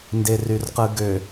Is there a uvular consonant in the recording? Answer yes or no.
yes